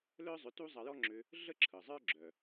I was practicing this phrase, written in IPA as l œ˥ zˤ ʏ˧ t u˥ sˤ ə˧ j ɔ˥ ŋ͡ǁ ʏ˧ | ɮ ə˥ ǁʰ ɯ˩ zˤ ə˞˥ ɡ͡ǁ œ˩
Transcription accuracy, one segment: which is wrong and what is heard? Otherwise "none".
sˤ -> zˤ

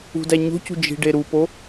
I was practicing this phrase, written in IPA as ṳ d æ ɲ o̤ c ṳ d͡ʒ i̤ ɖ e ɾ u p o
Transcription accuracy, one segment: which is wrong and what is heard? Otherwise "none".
none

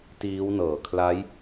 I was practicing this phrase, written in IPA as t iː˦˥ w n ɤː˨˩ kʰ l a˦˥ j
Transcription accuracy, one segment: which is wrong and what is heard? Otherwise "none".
none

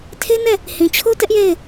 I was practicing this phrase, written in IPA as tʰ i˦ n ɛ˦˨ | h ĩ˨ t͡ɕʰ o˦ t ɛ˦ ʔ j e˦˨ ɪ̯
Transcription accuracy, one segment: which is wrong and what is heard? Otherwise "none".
i˦ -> e˦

